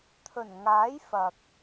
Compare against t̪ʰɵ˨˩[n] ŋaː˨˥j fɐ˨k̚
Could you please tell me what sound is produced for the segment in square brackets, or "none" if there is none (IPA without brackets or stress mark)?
n